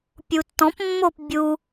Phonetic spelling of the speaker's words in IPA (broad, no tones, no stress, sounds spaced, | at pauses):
pʲ u tː ɔ̃ p mː o p bʲ u